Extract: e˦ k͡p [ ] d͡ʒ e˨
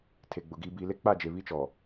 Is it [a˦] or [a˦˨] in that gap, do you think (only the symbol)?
a˦˨